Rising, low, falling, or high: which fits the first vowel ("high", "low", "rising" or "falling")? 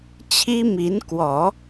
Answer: high